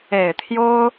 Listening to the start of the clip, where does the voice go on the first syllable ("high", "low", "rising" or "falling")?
low